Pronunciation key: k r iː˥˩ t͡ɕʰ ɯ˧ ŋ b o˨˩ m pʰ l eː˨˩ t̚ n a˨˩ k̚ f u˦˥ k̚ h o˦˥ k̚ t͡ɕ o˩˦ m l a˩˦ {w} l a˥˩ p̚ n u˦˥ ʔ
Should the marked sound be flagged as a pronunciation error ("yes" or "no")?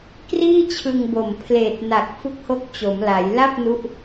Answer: yes